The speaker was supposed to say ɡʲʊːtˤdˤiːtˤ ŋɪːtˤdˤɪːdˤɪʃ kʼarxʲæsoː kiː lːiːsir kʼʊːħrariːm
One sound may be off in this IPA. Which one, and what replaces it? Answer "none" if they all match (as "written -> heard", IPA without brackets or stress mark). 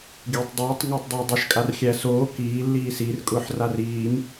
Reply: none